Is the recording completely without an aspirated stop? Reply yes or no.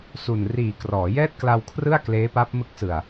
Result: no